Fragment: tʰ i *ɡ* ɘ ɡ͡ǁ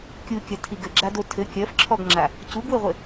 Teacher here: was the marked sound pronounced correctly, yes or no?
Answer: yes